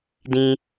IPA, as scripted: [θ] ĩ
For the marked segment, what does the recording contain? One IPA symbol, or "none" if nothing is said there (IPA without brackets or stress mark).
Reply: d